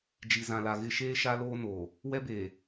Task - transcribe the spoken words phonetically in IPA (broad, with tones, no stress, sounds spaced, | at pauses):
d͡ʒ i˨ z ã˨ l a˨ ɣ ɪ˦ ʃ eː˦ ʃ a˦ l oː˦ n oː˨ | w ɛ˦ b eː˨